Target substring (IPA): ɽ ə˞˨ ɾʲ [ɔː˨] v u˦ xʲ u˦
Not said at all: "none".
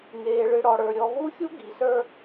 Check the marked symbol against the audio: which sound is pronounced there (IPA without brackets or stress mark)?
ɔ˨